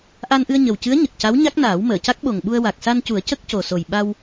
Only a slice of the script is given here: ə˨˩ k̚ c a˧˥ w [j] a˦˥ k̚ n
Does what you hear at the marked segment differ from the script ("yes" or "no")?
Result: yes